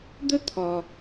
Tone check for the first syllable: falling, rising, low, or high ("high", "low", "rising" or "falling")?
high